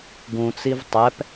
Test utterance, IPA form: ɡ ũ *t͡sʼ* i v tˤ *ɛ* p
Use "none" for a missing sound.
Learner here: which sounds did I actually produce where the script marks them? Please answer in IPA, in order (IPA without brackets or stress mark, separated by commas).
t͡s, ɛ